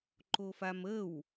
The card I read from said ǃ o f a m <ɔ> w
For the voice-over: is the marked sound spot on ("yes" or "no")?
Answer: no